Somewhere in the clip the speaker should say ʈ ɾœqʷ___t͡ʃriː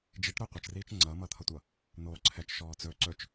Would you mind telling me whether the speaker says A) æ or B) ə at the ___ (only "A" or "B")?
B